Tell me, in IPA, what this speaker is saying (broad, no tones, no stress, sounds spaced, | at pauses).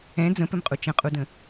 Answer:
ɛ̃ d͡z ə̃ p ɘ m qʼ u t͡ʃ ə̃ qʼ u d ə̃